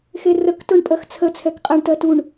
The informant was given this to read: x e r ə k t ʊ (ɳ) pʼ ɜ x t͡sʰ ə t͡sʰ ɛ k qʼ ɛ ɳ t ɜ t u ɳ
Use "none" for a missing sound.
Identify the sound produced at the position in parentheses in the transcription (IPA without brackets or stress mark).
ɳ